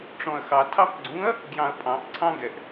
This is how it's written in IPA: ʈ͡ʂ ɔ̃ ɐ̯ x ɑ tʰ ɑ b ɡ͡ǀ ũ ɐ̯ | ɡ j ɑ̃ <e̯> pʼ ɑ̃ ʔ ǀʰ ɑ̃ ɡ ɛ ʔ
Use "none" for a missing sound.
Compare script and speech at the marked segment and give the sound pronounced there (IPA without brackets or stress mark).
ɐ̯